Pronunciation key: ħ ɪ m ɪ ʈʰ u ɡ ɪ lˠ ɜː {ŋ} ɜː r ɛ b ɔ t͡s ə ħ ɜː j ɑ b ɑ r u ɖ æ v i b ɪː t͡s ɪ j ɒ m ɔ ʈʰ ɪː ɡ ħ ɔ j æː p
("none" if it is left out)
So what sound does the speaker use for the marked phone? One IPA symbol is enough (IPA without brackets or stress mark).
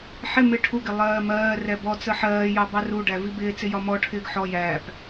m